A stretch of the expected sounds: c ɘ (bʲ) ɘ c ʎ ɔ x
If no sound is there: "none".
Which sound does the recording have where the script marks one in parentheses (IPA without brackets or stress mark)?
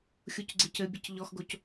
bʲ